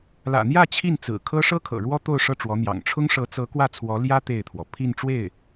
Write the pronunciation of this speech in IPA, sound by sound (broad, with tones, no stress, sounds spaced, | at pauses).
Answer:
l ä̰˨˩ n̪ j ä˥˧ t͡ɕʰ i˥˩ n t͡s ɹ̩˨˩ kʰ ɤ˥ ʂ ɤ˥ kʰ ɤ̰˨˩ ɻ w ɔ˥ t̪ o˥˧ ʊ̯ ʂ ɤ˥˩ ʈ͡ʂ w ɔ˧˥ n̪ j ɑ̰˨˩ ŋ ʈ͡ʂʰ ʊ˥ ŋ ʂ ɤ˧˥ t͡s ɤ˧˥ k w ä˥˩ t͡sʰ w ɔ˧˥ l j ä˥ t̪ e˥˩ ɪ̯ t̪ʰ w ɔ˩ pʰ i˥˧ n ʈ͡ʂ w e˥˩ ɪ̯